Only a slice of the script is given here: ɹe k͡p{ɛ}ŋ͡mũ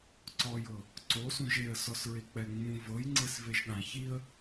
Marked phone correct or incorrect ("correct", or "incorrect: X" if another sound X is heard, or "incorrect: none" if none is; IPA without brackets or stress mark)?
correct